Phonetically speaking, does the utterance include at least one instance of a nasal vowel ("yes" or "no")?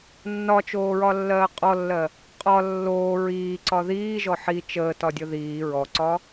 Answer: no